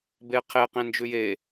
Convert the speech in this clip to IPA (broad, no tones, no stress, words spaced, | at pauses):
beqʰe qẽnd͡ʒʉje